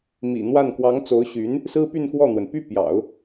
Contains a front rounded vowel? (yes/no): yes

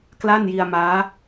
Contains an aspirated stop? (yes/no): no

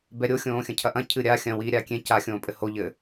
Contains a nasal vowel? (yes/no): yes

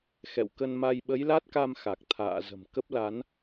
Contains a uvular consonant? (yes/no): no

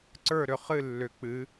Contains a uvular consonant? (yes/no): yes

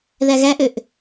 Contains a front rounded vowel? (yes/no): yes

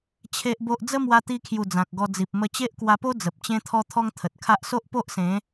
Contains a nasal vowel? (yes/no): yes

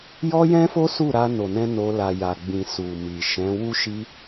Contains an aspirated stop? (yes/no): no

